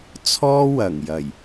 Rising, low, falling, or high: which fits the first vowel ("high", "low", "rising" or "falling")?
high